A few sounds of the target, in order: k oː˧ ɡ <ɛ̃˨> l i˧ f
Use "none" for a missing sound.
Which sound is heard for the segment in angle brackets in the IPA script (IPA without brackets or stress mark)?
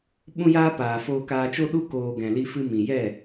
ɛ̃˨